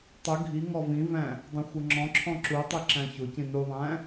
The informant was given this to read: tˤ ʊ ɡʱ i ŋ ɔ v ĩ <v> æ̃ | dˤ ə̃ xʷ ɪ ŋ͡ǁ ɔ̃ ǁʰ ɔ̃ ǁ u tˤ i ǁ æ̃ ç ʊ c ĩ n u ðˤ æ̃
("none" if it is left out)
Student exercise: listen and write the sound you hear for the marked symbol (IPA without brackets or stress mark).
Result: v